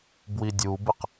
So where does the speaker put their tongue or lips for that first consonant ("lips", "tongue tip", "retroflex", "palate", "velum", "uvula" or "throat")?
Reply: lips